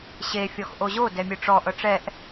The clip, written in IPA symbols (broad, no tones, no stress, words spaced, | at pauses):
ɕe fʲɔxʔoʑo dɛmʲɯʈ͡ʂɔ ʔɤʈ͡ʂɛʔ